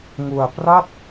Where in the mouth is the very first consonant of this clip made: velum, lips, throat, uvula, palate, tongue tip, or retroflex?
velum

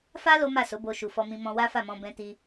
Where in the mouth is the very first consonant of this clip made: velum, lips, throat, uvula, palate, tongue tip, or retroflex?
lips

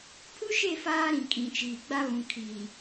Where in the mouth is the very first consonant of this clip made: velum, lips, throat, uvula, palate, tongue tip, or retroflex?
lips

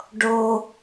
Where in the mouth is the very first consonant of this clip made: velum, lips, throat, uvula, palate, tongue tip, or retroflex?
retroflex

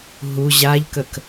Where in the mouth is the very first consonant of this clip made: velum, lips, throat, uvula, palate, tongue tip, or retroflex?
throat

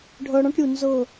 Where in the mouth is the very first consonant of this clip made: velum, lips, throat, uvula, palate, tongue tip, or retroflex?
retroflex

